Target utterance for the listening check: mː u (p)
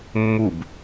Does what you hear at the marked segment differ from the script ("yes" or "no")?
yes